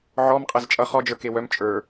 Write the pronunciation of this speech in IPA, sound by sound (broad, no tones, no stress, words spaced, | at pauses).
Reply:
ʕɔm qʼɛzt͡ʃʼʌ χɔd͡ʒə˞ kewœm t͡ʃʼə˞